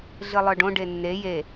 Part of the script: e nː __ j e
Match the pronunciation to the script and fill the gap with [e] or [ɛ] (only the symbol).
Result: e